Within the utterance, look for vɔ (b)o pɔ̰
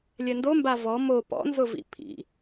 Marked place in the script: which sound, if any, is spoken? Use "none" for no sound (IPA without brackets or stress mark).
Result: m